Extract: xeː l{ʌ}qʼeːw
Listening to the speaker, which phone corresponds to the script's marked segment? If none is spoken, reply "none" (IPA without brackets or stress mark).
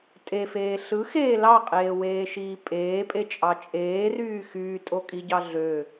ɑ